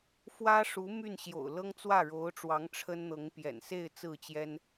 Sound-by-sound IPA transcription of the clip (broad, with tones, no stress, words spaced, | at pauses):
fwä˥ʂu˧˥ my˥˩nɕjo̰˨˩ʊ̯lɤ˥ŋ t͡swä˥˩ɻo˧˥ʊ̯ʈ͡ʂwɑ˧˥ŋ ʈ͡ʂʰə˥nn̪ɤ˧˥ŋ pjɛ̰˨˩nse˥˧ɪ̯ t͡sɹ̩˥˩t͡ɕjɛ˥n